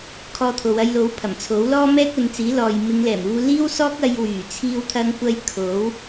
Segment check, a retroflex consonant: absent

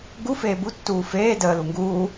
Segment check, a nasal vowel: absent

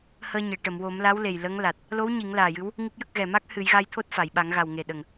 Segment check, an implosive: present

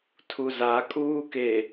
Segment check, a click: absent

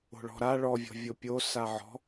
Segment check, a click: absent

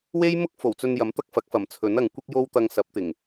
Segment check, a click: absent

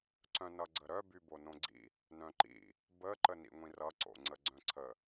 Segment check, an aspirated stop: present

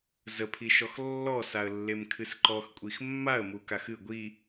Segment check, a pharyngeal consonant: absent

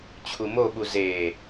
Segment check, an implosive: present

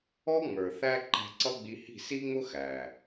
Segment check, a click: present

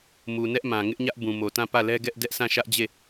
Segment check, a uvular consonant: absent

